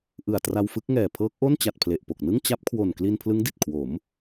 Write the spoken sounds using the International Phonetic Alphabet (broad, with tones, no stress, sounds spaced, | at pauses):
ʔ ɯ˨˩ a̯ t r a˧ w f ɯ˦˥ k̚ ŋ ɛː˨˩ pʰ ɤː˦˥ k̚ ʔ o˥˩ n t͡ɕ a˨˩ t̚ pʰ l e˨˩ ʔ p o˨˩ k̚ n ɯ˥˩ ŋ t͡ɕ a˦˥ p̚ kʰ w o˨˩ n k l i˧ n pʰ l ɯ˦˥ ŋ d i˨˩ t̚ kʰ w o˩˦ m